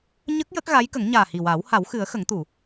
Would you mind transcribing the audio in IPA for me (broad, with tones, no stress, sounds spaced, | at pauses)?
ɲ ə˦˥ k̚ j ə˦˥ k̚ ɣ a˧˥ j k ə˨˩˦ ŋ ɲ aː˨˩ h i˨˩ w aː˨˩˦ w h a˨˩˦ w x ɨ˨˩˦ ə̯ x ə˨˩˦ ŋ t̪ u˨˩˨